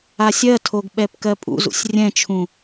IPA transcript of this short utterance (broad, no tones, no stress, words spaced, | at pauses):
asʲɜtʰoɡ ɓɛpkɜpʼṵzṵsʲ rʲɛ̃t͡ʃʰũ